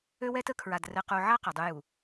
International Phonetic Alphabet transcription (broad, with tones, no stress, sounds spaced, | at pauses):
ø˦ w ɛ˦ t ə˦ kʰ ɹ a˨ d r ɘ˨ q u˨ ʕ a˦ q ɛ˨ dˤ u˦ j u˨